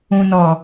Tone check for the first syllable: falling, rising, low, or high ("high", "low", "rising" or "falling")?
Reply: low